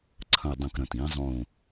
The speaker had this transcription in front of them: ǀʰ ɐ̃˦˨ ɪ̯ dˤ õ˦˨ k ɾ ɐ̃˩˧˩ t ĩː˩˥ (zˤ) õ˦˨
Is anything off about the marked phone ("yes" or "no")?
no